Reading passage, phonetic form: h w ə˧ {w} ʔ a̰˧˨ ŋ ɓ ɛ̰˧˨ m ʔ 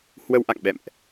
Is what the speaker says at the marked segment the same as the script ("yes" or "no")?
yes